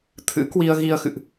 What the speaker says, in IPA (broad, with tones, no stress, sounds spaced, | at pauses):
t̪ʰ ɨ̰˧˥ k w i˧ ə̯ ɣ i˧ ə̯ x ɨ̰˧˨ ʔ